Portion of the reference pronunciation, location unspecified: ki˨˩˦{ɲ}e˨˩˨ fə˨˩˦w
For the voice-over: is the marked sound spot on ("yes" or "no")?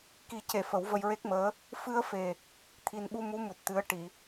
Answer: no